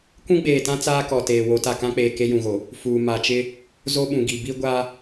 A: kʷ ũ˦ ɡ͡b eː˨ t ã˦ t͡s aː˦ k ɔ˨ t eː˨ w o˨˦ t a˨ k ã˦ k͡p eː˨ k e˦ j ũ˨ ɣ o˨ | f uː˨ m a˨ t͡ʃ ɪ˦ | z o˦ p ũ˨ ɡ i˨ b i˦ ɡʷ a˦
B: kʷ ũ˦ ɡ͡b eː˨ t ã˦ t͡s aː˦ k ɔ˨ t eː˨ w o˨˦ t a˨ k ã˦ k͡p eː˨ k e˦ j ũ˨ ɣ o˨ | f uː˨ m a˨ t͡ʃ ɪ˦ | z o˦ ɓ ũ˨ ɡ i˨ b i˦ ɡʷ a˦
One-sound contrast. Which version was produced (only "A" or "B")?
B